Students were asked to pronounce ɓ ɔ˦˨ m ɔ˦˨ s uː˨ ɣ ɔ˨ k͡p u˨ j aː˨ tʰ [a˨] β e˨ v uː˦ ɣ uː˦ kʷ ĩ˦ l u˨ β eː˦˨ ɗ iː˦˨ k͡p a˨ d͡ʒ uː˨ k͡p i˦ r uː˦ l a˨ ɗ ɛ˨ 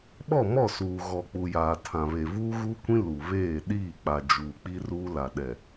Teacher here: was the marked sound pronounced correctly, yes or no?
no